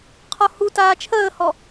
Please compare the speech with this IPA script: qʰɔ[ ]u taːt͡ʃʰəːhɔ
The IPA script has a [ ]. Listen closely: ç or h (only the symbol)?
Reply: h